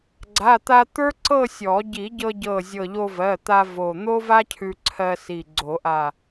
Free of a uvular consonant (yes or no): yes